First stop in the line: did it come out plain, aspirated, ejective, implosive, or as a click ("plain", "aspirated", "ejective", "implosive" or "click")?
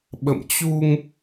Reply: implosive